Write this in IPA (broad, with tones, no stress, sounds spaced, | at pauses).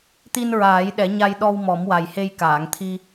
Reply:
t̪ i˧ n ɹ aː˨˩˦ j ɗ ɛ˨˩˦ ɲ a˧ j ɗ ɔ˧ w m ɔ˨˩˦ m w a˨˩ j h e˧ j k aː˨˩˨ ŋ t̪ʰ i˧